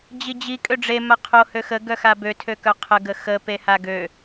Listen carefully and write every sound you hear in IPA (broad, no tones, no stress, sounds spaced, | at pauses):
d͡ʑ i d͡ʑ i kʼ ø ɖ͡ʐ e m a qʰ o h ø x ə ɡ œ x a b ø tʰ ø k œ qʰ ə ɡ ə x ə p e h a ɡ ø